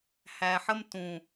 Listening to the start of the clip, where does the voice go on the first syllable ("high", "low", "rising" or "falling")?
low